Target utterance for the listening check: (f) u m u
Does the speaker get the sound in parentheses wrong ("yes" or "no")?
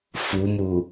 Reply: no